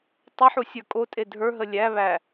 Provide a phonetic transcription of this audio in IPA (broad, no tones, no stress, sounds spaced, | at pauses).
tˤ ə ħ u sʲ ə˞ kʼ o tʼ e dʱ ə˞ ɦ ə lʲ æ β æ